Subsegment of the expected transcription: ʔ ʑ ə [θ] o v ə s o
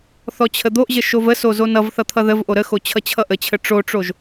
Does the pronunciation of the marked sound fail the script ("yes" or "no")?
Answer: yes